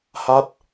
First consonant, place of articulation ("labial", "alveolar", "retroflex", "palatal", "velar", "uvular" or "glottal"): glottal